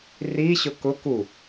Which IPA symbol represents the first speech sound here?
r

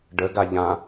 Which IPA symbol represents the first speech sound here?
ɖ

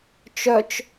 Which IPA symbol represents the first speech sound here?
t͡ʃ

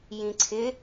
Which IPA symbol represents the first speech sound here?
j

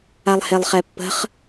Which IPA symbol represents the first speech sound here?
a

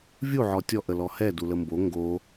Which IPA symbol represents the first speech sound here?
vʲ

